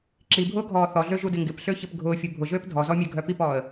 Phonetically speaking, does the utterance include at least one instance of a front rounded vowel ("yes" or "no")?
yes